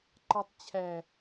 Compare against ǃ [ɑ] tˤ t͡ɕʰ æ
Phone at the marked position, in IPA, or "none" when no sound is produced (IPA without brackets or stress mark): ɑ